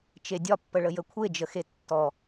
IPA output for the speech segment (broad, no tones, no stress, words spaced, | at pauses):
t͡ʃedʲɒpːəɭə jəkʷʰed͡ʒəxe tːɔ